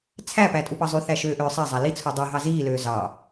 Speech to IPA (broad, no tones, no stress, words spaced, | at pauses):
t͡sʰæpæ tʼupɑzˤyθæ ʃøːʔøːsˤæzˤæ lit͡sʰu dˤyɦɑ ziːløː zɑ